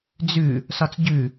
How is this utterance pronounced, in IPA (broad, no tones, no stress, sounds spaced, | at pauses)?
d͡z ʉ | s ɒ t͡s ɟ ʉ